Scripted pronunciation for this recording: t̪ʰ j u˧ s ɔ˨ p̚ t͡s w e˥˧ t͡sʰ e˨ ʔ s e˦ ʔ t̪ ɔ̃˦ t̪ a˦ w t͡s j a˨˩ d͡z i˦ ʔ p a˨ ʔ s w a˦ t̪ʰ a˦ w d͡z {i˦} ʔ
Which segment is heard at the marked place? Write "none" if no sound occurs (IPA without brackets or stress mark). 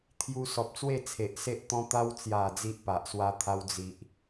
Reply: i˦